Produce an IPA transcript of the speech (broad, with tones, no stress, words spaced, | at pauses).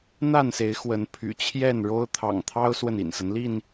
n̪a˥˨nse˨˦ɪ̯ xwə˨˦npʰy̰˨˩ t͡ɕʰjɛ˥˨nɻo˦ʊ̯ t̪ʰɑ̰˨˩ŋt̪ʰɑ˦ʊ̯swə˨n ḭ˨˩nsə˦n li˥˨n